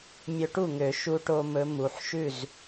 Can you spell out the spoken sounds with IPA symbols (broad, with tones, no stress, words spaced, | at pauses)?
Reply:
mʲɵ˧ʈu˥˩ŋø˨˩˦ ʃu˧ʈo˧ mɵ˧˥mu˩˧˩ħ ʃʉ˥˩z